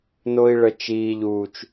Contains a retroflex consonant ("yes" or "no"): yes